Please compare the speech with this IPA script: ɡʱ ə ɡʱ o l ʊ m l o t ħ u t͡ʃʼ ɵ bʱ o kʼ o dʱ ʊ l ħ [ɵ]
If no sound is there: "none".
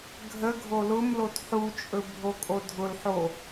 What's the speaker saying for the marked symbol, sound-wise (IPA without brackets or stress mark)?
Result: o